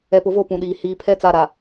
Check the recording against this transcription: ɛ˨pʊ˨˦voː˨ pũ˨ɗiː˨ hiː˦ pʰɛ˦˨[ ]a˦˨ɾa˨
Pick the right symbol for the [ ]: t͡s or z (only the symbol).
t͡s